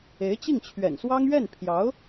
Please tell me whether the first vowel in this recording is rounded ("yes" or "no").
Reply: no